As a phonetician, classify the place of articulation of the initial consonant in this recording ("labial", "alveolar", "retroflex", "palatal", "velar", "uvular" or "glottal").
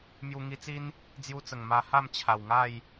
labial